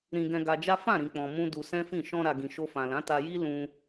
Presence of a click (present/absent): absent